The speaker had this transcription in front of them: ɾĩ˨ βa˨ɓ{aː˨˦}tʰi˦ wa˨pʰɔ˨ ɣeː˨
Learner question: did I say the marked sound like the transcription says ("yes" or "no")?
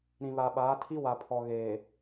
yes